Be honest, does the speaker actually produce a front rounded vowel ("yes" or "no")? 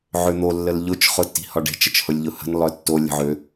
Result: yes